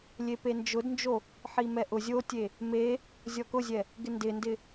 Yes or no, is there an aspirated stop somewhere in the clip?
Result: no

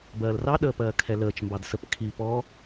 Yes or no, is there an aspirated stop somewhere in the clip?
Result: yes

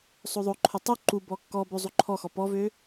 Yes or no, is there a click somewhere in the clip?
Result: yes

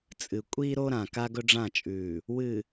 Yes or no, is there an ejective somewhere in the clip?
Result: yes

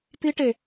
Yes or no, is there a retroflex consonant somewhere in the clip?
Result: yes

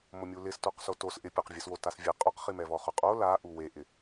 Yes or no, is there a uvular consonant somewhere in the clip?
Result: yes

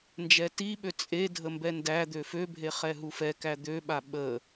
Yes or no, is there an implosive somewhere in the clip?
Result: yes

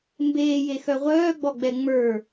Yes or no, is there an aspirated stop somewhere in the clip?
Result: no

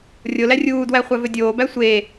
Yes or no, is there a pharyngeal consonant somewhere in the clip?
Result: no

